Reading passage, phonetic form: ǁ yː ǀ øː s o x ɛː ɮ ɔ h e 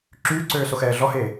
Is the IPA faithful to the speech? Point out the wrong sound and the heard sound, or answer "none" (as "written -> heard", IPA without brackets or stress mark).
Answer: none